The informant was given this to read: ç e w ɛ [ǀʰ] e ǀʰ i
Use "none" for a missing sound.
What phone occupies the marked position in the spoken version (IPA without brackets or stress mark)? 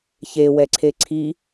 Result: ǀʰ